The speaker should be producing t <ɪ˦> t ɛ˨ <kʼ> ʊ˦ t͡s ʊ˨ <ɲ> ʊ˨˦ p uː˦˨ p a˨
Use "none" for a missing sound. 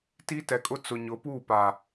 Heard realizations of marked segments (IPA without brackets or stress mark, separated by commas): i˦, kʼ, ɲ